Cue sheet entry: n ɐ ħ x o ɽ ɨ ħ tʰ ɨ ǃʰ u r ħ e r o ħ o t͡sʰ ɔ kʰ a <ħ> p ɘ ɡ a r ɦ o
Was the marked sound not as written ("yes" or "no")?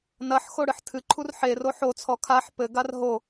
no